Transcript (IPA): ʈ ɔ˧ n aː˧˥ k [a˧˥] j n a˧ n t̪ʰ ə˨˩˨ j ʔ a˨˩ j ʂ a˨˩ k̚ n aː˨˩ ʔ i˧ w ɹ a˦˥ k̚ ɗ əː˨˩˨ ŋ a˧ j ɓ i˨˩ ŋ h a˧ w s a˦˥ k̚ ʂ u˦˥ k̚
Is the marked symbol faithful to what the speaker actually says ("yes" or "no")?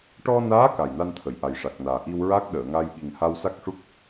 no